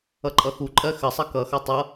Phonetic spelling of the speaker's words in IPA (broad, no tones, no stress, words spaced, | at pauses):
ʌǃʼʌxuǃʼɜ xəsˤʌ kʌxʌ tˤʌ